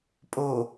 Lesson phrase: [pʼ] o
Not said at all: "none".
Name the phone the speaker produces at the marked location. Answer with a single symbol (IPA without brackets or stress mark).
pʼ